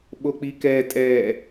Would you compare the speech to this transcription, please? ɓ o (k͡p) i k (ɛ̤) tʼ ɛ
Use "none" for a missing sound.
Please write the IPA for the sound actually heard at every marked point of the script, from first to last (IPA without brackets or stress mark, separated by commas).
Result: k͡p, ɛ